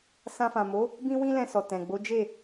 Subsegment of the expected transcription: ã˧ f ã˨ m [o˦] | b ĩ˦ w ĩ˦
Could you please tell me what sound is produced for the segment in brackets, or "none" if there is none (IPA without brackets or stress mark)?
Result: o˨˦